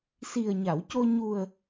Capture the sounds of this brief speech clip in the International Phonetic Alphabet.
s i˨˩ ə̯ ɲ a˨˩˨ w c o˧ ɲ u˨˩ ə̯

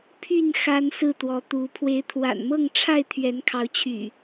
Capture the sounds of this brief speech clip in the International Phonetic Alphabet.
pʰ y˥˨ n x a˦ n s ɹ̩˥˨ t̪ w ɔ˨˦ t̪ u˨˦ pʰ w e˨˦ ɪ̯ t̪ʰ w a̰˨˩ n m ɤ˥˨ ŋ ʈ͡ʂʰ a˥˨ ɪ̯ t̪ʰ ɥ ɛ˨˦ n kʰ ɑ˨˦ ʊ̯ t͡ɕʰ y̰˨˩

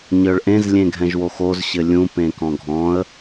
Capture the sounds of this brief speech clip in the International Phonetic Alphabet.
ɲ ə˞ ɭ ʔ ẽ z lʲ ẽ ɡʱ ɛ̃ ʒ w o x o z ɕ ɘ lʲ ũ p ẽ k ɔ̃ ɡʱ ɔ̃ ə̯

